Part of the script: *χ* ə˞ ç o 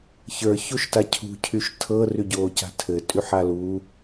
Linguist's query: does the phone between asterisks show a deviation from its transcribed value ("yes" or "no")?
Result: yes